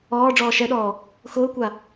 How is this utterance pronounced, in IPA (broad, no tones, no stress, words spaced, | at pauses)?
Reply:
ɔː ɖ͡ʐɔːʃɛɗɔː | xʊːkʷa